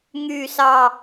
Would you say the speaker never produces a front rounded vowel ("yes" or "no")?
no